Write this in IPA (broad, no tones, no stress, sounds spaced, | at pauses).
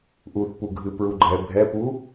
ʔ u θ p u ɡʱ ɨ p ɹ u ɡ͡ǃ ɛ bʱ ɛ p u